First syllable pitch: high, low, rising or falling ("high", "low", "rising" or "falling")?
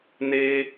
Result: high